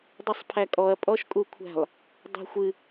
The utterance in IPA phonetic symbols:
dˤ ɛ sˤ pʰ æ kʼ ɔ ɐ̯ pʼ ɔ ʃ kʼ u kʷʰ æ̤ lˠ | dˤ æ̤ xʷ ɨ

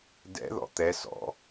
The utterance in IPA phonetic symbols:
d ɛ̰ ð ɔ̰ t̪ ɛ s ɔ̰

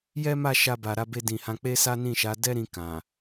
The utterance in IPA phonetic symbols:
j ɛ˦ m a˦˨ ʃ a˧ b a˨ ɾ a˧ b e˧ d ĩ˨ h ã˨˦ k͡p e˦ s a˦ n ĩ˦˨ ʃ a˨˦ d ɛ˦ ɾ ĩ˧ k ã˨

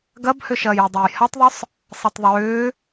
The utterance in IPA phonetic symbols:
ɡ ɐ b h ʏ ʃ ɐː j y dˤ o j h a tˤ ðˤ ʏ sˤ | sˤ ɐ tˤ ðˤ ʏː

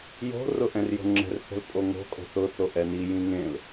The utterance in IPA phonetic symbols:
j o̤ r ʊ ʔ ɛ̃ r j o̤ ŋ͡ǁ ɛ̤ r θ ɛ̤ l pʼ o ŋ o̤ kʼ o̤ θ ʊ θ o ʔ ɛ n i j ĩ ŋ ẽ l

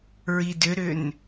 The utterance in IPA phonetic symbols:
ɹ i d ʏ ɾ ʏ n

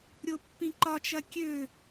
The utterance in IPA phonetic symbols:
ɾʲ o pː ĩ ǃ ɒ t͡ʃ ɐ kʲ ø

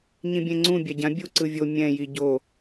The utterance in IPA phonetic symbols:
ɲ ĩ bʲ ẽ ŋ͡ǀ ũ bʲ a ɟ ã bʲ u ǀ ɯ vʲ o mʲ ɛ̃ j i ɟ o

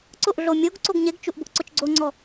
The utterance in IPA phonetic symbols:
ǀ ʊ ʔ ɮ o mʲ o ɡ ǀ o ɡ ɲ e ɡ t͡ʃ u ʔ b ʊ ʔ ǀ ʊ t͡ʃ ɡ͡ǀ o ŋ͡ǀ ɔ

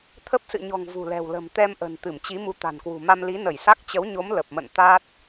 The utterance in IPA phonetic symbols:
t̪ʰ ə˦˥ p̚ s ɨ̰˧˨ ɲ ɔ̤˨˩ ŋ v ṳ˨˩ l ɛ̤˨˩ w l ə̤˨˩ m t̪ ɛ˧ m ʔ ə̤˨˩ n t̪ ɨ˧˩ m t͡ɕ i˨˦ m u˨˦ t̪ a̤˨˩ n k w ṳ˨˩ m a˧ m l i˨˦ n ə˧˩ j s a˦˥ k̚ t͡ɕ ə˨˦ w ɲ o˨˦ m l ə˨˩ p̚ m ə̰˧˨ n t̪ a˦˥ t̚

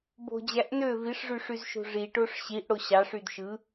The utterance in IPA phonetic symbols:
b o̤ d͡ʑ æ ʔ n ø v i ʂ ʐ y ʂ y z ʃ o̤ ʐ i ʈ o ʂ ɕ i ʔ ɽ o ɕ ɑ ʂ y d ʃ ɯ

